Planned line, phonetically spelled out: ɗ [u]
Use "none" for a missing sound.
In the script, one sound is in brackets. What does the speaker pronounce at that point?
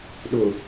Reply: u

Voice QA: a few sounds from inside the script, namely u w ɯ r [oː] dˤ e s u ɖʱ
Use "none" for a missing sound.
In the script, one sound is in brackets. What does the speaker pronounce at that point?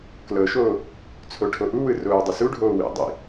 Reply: oː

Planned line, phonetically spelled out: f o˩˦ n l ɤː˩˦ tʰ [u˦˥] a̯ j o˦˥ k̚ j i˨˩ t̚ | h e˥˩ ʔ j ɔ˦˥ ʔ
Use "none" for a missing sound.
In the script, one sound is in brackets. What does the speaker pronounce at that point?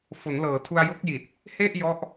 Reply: u˧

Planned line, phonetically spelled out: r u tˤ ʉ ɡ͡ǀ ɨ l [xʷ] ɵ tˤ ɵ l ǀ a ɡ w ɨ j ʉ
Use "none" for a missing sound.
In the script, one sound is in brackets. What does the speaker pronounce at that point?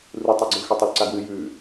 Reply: x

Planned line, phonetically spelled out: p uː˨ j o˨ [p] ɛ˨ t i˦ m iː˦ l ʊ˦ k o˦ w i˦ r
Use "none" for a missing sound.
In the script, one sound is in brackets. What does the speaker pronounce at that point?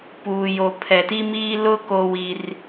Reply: pʰ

